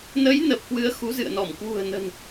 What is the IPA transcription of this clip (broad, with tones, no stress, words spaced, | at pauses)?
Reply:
nə˨˦j nə˨˩p̚kwɨ˨˦ə̯ xu˨˦zɨ̰˧˨ə̯nɔ˧˩m kwṳ˨˩ə̯nə̤˨˩n